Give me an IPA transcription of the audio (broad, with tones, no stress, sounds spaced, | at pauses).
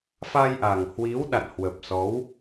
f a˧ j ʔ a˨˩ ŋ h w i˨˦ w ɗ a̰˧˨ n h w ə˨˩ p̚ s ɔ˨˦ w